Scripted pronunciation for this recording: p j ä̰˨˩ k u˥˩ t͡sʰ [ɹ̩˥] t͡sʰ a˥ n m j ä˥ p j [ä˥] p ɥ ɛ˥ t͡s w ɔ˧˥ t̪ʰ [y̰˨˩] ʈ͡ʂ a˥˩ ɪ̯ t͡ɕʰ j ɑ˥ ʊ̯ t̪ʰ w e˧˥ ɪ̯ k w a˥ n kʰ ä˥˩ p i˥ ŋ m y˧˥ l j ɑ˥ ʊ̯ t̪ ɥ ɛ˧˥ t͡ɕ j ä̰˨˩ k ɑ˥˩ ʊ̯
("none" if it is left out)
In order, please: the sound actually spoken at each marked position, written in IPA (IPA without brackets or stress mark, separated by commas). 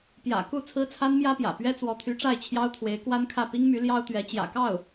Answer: ɹ̩˥, ä̰˨˩, y˧˥